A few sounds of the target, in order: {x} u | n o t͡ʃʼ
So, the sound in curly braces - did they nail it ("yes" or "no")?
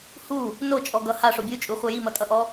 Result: no